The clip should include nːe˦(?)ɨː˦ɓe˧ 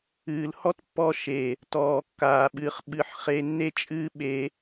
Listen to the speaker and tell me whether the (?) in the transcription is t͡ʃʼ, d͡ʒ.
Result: t͡ʃʼ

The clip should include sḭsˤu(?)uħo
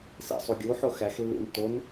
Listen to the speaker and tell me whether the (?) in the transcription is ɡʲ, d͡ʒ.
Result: ɡʲ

